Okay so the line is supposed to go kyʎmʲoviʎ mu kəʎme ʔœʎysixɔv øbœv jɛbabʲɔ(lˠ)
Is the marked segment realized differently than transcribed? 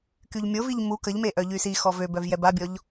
yes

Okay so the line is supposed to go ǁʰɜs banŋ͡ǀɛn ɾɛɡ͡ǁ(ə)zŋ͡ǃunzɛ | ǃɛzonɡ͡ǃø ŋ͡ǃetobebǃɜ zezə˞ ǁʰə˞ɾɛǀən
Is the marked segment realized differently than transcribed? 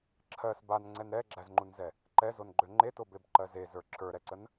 yes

